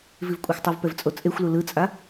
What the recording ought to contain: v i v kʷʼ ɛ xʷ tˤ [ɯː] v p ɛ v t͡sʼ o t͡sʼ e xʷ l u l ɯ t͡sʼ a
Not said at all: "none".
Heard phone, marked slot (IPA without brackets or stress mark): ɯ